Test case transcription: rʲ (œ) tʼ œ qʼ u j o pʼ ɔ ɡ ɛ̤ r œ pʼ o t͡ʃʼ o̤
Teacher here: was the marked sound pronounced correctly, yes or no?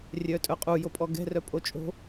yes